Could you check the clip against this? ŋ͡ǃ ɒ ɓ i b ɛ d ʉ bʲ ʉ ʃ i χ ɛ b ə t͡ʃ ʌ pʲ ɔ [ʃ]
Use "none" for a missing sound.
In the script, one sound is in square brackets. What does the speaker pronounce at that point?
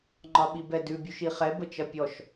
ʃ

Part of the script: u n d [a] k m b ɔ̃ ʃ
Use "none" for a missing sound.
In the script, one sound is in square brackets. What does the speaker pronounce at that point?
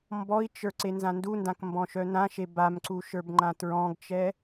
ã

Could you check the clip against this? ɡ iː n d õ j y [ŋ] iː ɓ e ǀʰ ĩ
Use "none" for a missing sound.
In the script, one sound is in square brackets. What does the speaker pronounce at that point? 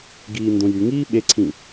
ŋ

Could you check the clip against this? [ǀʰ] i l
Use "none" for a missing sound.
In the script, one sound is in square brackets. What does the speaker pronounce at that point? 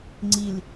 ŋ͡ǀ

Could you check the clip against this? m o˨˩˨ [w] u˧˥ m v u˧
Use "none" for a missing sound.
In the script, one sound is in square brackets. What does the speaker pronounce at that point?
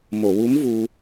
w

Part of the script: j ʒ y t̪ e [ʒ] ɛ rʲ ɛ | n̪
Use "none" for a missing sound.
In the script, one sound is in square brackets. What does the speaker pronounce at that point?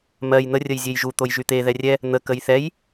ð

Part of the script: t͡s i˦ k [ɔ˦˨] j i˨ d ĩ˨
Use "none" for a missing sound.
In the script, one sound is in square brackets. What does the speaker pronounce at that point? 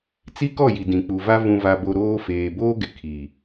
ɔ˦˨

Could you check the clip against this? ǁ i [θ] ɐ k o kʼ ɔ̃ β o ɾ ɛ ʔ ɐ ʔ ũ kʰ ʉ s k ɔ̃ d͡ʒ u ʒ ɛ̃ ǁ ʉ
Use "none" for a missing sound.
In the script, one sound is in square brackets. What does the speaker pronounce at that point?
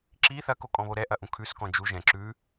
θ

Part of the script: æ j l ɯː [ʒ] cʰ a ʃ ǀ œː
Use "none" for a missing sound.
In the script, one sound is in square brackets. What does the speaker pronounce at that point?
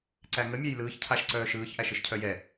ç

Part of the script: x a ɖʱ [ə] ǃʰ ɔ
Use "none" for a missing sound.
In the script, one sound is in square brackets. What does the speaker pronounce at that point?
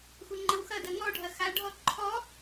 ɔ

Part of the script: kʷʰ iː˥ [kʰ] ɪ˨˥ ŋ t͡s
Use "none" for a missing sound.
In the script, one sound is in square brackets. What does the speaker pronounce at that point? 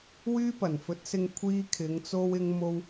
kʰ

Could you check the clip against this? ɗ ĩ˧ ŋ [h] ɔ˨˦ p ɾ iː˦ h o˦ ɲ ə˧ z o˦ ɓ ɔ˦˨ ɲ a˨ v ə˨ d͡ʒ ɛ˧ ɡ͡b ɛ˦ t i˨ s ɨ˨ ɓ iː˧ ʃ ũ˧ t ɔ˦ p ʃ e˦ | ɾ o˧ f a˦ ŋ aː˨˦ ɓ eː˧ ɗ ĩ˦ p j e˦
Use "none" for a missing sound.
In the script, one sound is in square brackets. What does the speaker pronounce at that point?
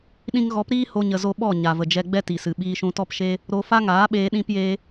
ɣ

